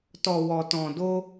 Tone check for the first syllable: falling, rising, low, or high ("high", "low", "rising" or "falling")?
low